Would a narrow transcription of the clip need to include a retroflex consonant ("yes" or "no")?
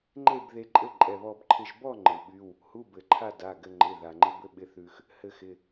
no